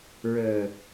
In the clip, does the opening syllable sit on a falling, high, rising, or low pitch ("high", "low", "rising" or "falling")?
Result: low